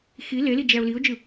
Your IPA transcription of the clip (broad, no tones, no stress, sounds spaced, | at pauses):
x i l e l i d͡ʒ æ ʊ̯ l i ʊ̯ d͡ʒ ɯ